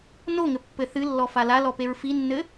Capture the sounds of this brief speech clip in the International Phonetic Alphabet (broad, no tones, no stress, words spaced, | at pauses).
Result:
noŋɘpːɘ θɨlːɔfa lalɔpeɹ finːɘ